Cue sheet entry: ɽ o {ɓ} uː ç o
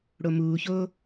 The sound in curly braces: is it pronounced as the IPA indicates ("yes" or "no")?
no